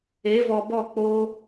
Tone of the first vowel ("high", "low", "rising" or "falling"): rising